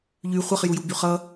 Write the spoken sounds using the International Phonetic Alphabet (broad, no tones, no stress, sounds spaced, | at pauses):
ʎ y χʷ ʌ χ j u j u b y χ ʌ